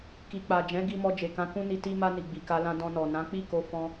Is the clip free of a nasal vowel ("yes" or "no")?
no